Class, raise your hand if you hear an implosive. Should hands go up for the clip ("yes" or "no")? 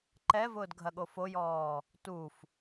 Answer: yes